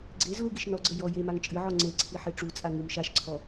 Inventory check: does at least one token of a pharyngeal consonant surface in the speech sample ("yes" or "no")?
yes